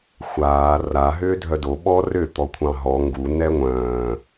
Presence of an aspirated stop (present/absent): present